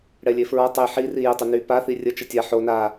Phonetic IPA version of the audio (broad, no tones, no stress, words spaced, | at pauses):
ɽɛlʲefɹɔ tˤe ħiri jətˤʏ ny paθi rʲə t͡ʃətʲa ħo na